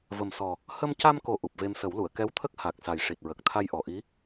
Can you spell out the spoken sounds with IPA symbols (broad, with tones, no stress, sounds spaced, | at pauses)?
v ə˨˩ m s ɔ˨˩ | h ə˧ m c a˧ m k o˨˩ ʔ u˨˩ p̚ v e˧ m s ə˨˩˦ w l u˨˩˨ ə̯ k ɛ˧˥ w t̪ʰ ə˦˥ k̚ h a˨˩ k̚ s a˨˩ j ʂ i˨˩ t̚ ɹ ə˨˩ k̚ t̪ʰ a˧ j ʔ ɔ˨˩ ʔ i˧˥